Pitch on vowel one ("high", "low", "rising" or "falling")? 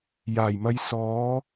low